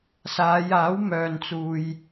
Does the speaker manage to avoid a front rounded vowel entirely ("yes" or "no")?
no